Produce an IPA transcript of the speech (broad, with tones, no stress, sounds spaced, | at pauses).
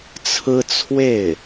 t͡sʰ ɹ̩˥ t͡sʰ w e˥˩ ɪ̯